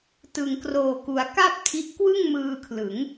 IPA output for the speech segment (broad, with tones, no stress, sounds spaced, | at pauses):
t ɯ˩˦ ŋ k r oː˨˩ k u˩˦ a̯ k a˥˩ p̚ tʰ i˦˥ ʔ k w ɯ˥˩ ŋ m ɯː˧ kʰ l ɯ˩˦ ŋ